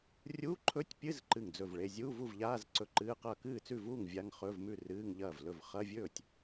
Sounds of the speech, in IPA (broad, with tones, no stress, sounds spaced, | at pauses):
rʲ uː˧˥˧ ǃʰ ɵ˧˥˧ tʲ pʲ ɨ˧˥˧ z ǃ ɨ˥˩ ŋ d͡z ɵ˥˩ v ɭ e˧˥˧ zʲ uː˧˥˧ v u˥˩ v ʎ aː˧˥˧ z ǀ ɵ˧˥˧ ǃ ɨː˧˥˧ q ɐː˥˩ k ɨː˥˩ t͡s ʉ˥˩ v uː˥˩ ŋ vʲ a˧˥˧ ŋ χ ɵː˧˥˧ v m ʉ˥˩ r ɨː˧˥˧ ŋ ʎ ɐː˥˩ v l ɵ˥˩ v χ ɐ˧˥˧ vʲ ɵː˥˩ tʲ